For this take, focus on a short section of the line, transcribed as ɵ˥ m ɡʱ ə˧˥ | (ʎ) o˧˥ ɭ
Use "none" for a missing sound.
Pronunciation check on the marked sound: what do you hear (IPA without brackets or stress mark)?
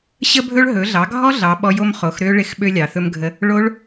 ɭ